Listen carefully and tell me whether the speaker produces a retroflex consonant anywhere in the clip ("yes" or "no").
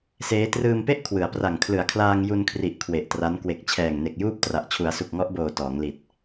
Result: no